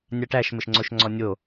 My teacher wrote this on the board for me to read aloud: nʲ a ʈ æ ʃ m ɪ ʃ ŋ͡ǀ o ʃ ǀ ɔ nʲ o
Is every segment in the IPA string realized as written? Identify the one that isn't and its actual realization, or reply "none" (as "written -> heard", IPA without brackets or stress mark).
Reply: ǀ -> ŋ͡ǀ